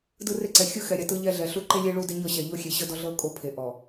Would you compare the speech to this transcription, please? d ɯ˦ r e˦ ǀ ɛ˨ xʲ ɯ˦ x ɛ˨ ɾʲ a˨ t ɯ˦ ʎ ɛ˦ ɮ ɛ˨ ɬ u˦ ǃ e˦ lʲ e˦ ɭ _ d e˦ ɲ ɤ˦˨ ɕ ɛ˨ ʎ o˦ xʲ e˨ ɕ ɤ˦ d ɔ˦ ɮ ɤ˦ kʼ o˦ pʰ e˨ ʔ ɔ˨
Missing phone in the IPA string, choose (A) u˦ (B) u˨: A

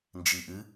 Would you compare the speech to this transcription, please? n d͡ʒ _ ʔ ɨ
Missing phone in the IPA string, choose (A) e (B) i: B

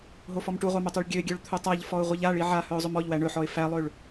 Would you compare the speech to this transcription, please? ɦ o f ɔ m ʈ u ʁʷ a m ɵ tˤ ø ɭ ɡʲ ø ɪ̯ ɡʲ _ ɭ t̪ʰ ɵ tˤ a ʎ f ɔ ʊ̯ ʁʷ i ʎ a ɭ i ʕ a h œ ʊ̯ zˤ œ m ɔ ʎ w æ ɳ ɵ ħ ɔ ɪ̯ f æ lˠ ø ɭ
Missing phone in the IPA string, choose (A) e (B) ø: B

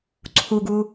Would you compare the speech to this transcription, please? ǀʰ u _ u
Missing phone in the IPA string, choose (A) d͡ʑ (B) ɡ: B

